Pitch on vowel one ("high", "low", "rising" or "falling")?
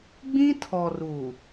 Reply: high